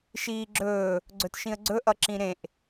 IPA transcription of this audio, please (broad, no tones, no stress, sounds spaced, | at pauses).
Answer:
ʃ iː ɡ͡ǁ ɵː | ɡ͡ǀ ɵ t ʃ ĩ ə̯ ɡ͡ǀ ɵ ʔ ʌ ǁ ĩ ɾ ẽ ʔ